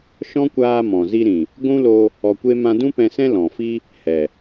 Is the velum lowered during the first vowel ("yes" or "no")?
yes